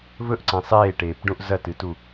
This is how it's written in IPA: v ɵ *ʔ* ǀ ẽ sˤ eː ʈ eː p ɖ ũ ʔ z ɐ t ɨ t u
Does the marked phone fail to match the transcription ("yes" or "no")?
no